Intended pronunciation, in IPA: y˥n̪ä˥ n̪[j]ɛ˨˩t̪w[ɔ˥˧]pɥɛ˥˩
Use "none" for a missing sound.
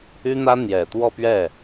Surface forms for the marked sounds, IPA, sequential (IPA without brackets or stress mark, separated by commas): j, ɔ˥˧